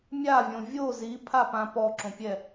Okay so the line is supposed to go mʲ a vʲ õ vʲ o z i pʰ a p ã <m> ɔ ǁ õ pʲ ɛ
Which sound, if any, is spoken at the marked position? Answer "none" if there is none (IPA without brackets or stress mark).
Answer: p